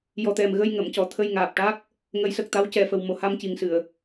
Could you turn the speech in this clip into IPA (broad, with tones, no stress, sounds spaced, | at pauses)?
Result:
j ɔ˨˩ t̪ ɛ˨˩ m ɣ ə˧ j ŋ ə˨˩˨ m c ɔ˨˩ t̪ʰ ə˧ j ŋ aː˨˩ p̚ ʈ a˦˥ k̚ | ŋ ə˨˩˦ j s ə˨˩ k̚ t̪ a˧˥ w c ɛ˨˩ f ə˨˩ w m o˨˩ h a˧ m c i˨˩ ŋ s ɨ˨˩˨ ə̯